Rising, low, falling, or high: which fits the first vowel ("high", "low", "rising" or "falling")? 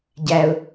low